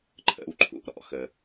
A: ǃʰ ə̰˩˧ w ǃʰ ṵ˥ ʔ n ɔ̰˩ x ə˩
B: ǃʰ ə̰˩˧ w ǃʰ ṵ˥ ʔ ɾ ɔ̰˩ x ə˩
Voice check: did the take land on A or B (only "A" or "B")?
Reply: B